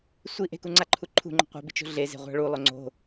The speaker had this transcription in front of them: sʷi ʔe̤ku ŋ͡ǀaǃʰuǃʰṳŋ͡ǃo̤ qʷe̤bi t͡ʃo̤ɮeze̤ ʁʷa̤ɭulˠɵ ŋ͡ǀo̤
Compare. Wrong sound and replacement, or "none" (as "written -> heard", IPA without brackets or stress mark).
none